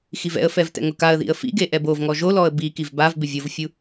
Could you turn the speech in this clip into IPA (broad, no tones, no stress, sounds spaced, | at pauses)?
x i v ɛ̰ ə̯ f ɛ v t ɛ̰ ŋ ʊ k a ə̯ ð ḭ ə̯ f ḭ ɡ e ʔ ɛ b o v ŋ ɔ ʒ o l ɔ ə̯ b i k i v b a v b ɪ vʲ o v fʲ u